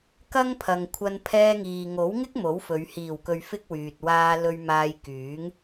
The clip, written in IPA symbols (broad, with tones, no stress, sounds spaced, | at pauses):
k ɐ˥ ŋ pʰ ɐ˨ ŋ kʷʰ ɐ˧ n pʰ ɛː˧ ŋ iː˨ ŋ o˨˥ w ŋ ɪ˥ k̚ m o˨˥ w f ɵ˨˧ ɥ h iː˨˩ w k ɵ˨ ɥ f ɪ˧ k̚ w yː˨ t̚ w aː˧ l ɵ˧ ɥ m aː˧ j k yː˨˥ ŋ